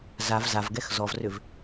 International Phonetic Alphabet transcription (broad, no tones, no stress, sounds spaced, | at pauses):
z a v z a v ɡ ɛ x z ɔ v r ʏ v